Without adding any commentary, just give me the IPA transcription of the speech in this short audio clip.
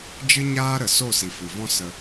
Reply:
d͡ʒ ɨ˦ ɲ aː˦ ɾ ə˨ s o˦˨ s i˨ f ɨ˨ v ɔ̃˦ s ə˧

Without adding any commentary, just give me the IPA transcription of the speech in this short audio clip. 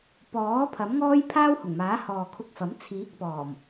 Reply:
p ɔː˨˥ pʰ ɐ˨˥ m ŋ ɔː˥ j pʰ aː˥ w h ʊ˨˩ ŋ m aː˨˥ h ɔː˨ kʰ ʊ˧ k̚ f ɐ˨˥ m t͡sʰ iː˨˥ k̚ p ɔː˨˩ m

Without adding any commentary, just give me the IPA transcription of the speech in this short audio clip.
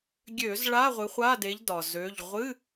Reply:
ɡʲ ø˧˩˧ z ɭ a˧˥˧ ʁʷ ɨ˨˦ χʷ a˧˥˧ d e˨˦ ʎ d ɒ˩ z ø˩˧˩ ʎ ʁʷ ɨ˧˥˧

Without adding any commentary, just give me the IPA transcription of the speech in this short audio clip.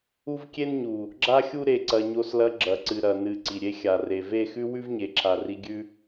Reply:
u˦ v kʲ e˦ n ɲ u˨ | ɡ͡ǁ a˦ xʲ u˦ ɾ e˧ ǀ ɐ˧ ɲ o˧ s l ɐ˧ ɡ͡ǁ ɐ˨ ǀ ɨ˨ ɾ ɐ˨ n ɨ˨ ǀ i˨ ɾʲ e˧ xʲ a˨ r e˨ v e˦˨ x ʉ˦ w ʉ˦ v ɲ e˨ ǁʰ a˨ r i˧ ɡʲ ʉ˦

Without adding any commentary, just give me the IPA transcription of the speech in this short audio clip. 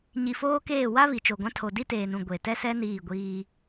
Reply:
ɲ i˨ f oː˦ k eː˦˨ w a˦ β i˨ t͡ʃ o˨ ɡʷ ã˦ tʰ o˨ d i˦ t eː˨ n ũ˨ ɡʷ e˨ t ɛ˦ s ɛ˦ n iː˦˨ ɡʷ iː˦

